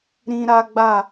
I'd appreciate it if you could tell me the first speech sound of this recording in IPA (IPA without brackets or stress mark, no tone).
ɾ